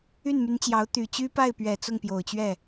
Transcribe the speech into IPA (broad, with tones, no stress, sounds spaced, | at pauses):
y˥˩ n m y˧˥ n t͡ɕ j ɑ˧˥ ʊ̯ t̪ y˨˩ t͡ɕ y˥ p a˥˩ ɪ̯ p ɥ ɛ˨˩ t͡s ʊ˥˩ ŋ p j o˨˩ ʊ̯ t͡ɕ ɥ ɛ˥˩